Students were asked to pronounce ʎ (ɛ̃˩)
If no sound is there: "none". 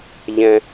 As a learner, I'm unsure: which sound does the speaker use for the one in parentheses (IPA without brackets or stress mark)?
ɛ̃˩